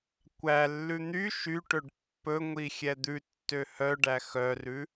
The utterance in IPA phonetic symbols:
kʷælːʉ n̪y ʃyʈɵɖ pːɵŋʷi xʲɛd̪ʉtːø hœɖæ xœrʉ

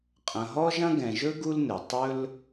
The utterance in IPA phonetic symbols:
qʼɐ̃˨ɦɔ˥ʒɐ̃˥ ɡɛ̃˨ʒɵ˥ɡu˦l nɘ˩ tˤɵ˥l

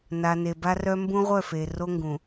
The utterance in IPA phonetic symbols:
na˨ ne˨ba˦rœ˦ mbũ˦ʁʷœ˦˨fe˨ ro˦ŋɡũ˨

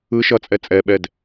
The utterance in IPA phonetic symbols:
ɯ ʃʌt͡sʼɛ t͡sʼɛɓɛd

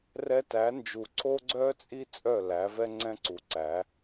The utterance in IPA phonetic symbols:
rɛ˦ tæ˨˦nd͡ʒu˨ ǀʰo˦ɡ͡ǀœː˦t͡sʼi˦ t͡sʼœ˦˨læ˨˦vɛ˦ ŋ͡ǀɛ̃˦ǀu˨ǀæ˨˦

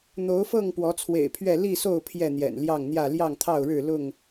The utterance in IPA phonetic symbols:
n̪o˨˦ʊ̯fɤ˥˨ŋ pwɔ˨˦t͡sʰwḛ˨˩ɪ̯pʰɥɛ˥˨ li˥˨so˥˨ʊ̯ pʰjɛ˥˨n̪jɛ̰˨˩nljɑ˥˨ŋn̪jä˥˨ ljɑ˥˨ŋt̪ʰɑ˥˨ʊ̯ɻɻ̩˥˨lʊ˥˨ŋ

